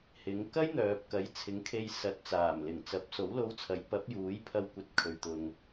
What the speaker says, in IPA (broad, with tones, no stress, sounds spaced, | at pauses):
h ɪ˨˥ ŋ k ɐ˥ j n̪ œː˨ p̚ k ɐ˨˥ j t͡sʰ ɪ˨˥ ŋ kʰ e˧ j s ɐ˨˥ t̚ t͡s aː˨˩ m l ɪ˨˩ ŋ t͡s ɐ˨˥ p̚ s o˨˥ w l o˧ w t͡sʰ ɐ˨˥ j p ɐ˨˥ p̚ j uː˨˥ j pʰ ɐ˧ w kʷ ɐ˨˥ t̚ kʰ ɵ˨ ɥ t̪ ʊ˨ ŋ